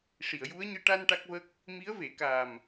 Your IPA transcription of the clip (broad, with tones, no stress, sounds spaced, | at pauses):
ʂ i˨˩˨ ə̯ j u˧˥ ə̯ ɲ ɨ˧ ʈ a˧ n ʈ a˦˥ k̚ v ə˦˥ k̚ | m i˧˥ ə̯ v e˨˩˦ k a˨˩ m